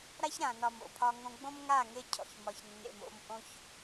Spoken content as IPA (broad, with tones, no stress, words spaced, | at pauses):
ɾa˦çɾã˨nɒ˨m o̰˨pʰɒ˦ŋõ˦ ɡ͡bõ˦mŋa˦˨ ŋe˦cʰɔ̰˨çmɒ˨çnːḛ˨m o̰˦m ʔõ˦ç